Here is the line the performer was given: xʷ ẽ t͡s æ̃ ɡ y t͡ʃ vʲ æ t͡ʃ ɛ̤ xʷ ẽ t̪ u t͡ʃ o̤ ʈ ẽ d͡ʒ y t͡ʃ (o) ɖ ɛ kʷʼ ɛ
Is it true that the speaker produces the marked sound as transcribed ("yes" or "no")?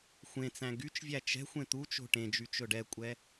no